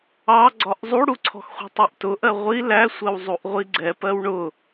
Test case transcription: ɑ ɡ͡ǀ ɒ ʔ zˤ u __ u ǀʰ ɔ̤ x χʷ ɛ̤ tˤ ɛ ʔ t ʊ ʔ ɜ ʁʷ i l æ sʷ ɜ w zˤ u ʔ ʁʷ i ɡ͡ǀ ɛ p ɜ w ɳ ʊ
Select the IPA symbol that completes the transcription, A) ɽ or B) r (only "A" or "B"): A